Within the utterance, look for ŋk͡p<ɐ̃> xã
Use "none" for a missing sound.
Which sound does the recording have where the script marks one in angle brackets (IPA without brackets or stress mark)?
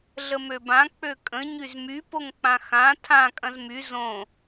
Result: ã